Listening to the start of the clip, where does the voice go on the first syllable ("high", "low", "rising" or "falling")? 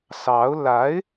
rising